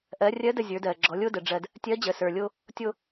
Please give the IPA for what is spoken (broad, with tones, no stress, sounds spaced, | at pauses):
ʔ ɜ˩˧ rʲ ɜ˧˥ d ə˧ zʲ ə˞˩˧ d ɜ˩ ɡ͡ǁ ɔ˩˧ lʲ o˥ d ə˩˧ ɖ͡ʐ ɜ˧ d | tʲ ɜ˧˥ d͡ʑ ə˩ s ə˞˩ lʲ o˧ | tʲ o˧